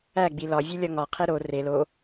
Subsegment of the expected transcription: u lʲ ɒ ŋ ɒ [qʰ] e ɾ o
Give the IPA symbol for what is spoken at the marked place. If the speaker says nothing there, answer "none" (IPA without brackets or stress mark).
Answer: qʰ